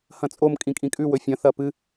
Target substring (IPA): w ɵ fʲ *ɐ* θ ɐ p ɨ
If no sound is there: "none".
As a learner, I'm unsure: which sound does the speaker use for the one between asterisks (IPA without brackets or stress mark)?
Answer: ɐ̃